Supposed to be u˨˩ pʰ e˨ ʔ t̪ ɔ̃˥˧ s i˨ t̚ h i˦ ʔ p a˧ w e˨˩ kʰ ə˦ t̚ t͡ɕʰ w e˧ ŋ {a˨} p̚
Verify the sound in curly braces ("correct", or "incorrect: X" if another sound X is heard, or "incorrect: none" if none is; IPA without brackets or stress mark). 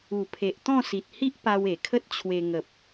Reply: incorrect: ə˨